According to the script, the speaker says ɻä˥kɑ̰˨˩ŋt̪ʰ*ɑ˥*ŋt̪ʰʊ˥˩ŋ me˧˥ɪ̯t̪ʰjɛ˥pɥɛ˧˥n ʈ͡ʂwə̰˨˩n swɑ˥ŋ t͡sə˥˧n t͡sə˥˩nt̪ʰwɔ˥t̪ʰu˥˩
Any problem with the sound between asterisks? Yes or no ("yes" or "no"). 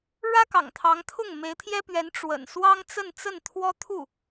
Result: yes